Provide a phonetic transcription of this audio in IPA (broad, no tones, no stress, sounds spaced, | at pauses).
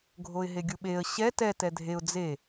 ɡʱ o ɪ̯ ɦ e ɡʲ u ɓ e ə̯ ɕ ɛ t ɛ t ɛ dʱ e ʊ̯ d͡z e